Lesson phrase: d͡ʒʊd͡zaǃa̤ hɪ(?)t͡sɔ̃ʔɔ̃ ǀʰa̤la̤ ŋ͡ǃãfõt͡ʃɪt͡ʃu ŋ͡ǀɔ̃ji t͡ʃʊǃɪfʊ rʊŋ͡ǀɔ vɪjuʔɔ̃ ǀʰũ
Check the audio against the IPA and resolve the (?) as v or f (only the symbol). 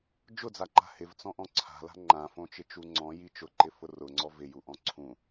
v